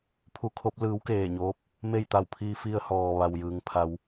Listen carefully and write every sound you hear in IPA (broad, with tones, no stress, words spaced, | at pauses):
pʰu˧kʰo˧˥p̚ lɯː˧˥wkeː˧˩ɲoː˧˥p̚ | me˥˨jt̪a˧˩wpʰiː˧ fi˧ə̯ hɔː˩ ʋa˩wjɯː˩ŋpʰa˩˧w